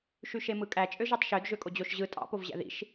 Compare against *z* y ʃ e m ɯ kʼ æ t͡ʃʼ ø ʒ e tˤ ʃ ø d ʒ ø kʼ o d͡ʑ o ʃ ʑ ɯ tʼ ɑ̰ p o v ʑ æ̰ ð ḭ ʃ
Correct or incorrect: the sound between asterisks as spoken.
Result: incorrect: ʃ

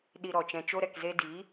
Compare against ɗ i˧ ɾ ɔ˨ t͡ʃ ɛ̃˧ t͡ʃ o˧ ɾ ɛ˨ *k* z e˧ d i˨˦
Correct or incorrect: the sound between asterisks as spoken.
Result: correct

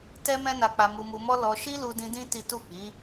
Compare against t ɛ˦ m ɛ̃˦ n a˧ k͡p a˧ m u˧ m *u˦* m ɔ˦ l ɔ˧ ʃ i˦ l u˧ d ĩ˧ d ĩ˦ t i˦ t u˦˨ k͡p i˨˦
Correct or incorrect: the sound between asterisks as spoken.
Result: incorrect: u˧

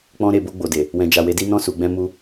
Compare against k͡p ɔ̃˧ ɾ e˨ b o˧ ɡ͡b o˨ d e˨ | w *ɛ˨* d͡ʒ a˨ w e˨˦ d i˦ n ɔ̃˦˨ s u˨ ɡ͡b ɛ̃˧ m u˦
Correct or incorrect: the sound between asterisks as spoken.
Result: incorrect: ɛ̃˨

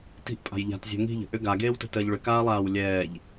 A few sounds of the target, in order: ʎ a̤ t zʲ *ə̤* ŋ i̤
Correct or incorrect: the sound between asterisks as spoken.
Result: incorrect: ɛ̤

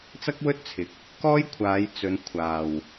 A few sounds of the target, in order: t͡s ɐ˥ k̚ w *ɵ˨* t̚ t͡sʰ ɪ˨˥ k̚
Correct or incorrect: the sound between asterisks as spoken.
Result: incorrect: ɵ˥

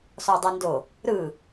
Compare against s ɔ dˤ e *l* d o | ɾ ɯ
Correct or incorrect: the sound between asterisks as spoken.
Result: incorrect: n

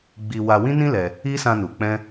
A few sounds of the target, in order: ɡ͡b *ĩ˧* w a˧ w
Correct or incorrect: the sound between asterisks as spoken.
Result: incorrect: i˧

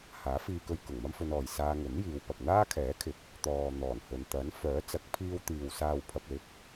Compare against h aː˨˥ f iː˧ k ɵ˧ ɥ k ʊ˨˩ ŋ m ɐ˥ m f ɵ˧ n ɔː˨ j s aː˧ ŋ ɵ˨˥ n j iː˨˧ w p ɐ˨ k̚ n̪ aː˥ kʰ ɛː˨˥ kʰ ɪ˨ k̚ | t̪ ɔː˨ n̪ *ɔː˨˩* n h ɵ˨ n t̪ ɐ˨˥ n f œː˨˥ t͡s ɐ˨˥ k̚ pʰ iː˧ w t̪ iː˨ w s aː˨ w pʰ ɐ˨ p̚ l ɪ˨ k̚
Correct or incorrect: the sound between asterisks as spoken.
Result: correct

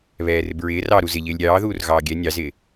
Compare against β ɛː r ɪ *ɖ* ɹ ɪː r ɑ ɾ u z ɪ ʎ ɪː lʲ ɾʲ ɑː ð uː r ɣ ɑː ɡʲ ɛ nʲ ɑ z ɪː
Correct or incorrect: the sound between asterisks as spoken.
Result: incorrect: b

